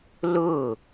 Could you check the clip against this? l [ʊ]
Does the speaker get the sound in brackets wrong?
no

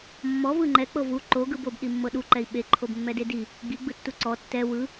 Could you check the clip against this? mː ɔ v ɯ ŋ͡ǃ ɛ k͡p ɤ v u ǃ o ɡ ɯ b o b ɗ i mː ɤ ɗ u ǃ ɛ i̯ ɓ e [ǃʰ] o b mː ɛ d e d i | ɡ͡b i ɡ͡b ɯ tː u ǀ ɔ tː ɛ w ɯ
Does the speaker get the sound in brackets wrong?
no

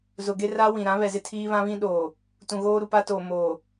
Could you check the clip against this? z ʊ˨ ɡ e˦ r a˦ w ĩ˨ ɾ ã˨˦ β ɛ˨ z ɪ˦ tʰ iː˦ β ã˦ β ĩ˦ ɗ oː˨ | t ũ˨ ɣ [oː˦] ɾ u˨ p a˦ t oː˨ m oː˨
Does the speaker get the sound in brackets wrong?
no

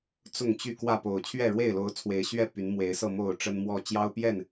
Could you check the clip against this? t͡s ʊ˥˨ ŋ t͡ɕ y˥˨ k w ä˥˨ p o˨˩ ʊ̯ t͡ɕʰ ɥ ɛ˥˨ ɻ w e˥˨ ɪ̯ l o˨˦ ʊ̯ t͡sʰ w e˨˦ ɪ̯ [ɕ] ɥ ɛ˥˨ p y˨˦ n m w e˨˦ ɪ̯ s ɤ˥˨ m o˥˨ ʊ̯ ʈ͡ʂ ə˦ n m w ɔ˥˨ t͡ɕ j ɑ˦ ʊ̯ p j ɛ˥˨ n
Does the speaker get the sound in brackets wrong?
no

